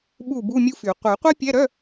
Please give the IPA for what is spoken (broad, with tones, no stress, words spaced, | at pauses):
ɓu˥˩bu˧˥˧ mʲu˥fy˨˩˦ qʷœ˨˩˦qʷɛ˥pʲɛ˧˥˧ɾœ˧˥˧